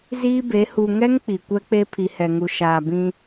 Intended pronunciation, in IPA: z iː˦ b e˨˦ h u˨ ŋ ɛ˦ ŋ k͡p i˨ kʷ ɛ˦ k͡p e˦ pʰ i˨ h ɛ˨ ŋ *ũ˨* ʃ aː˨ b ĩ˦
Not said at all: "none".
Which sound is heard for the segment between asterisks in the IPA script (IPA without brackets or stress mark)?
u˨